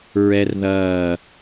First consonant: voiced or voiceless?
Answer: voiced